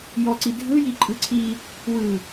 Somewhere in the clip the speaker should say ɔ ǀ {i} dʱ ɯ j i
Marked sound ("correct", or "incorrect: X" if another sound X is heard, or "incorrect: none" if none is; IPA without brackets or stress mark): correct